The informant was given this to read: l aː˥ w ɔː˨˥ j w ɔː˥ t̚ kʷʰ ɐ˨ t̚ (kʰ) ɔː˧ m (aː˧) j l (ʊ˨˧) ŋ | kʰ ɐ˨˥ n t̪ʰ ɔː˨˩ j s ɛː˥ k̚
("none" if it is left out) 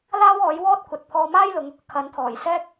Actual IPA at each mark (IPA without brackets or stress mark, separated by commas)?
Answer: pʰ, aː˥, ʊ˨˧